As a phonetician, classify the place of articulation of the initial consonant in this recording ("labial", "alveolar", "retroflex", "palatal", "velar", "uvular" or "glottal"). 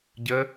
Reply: palatal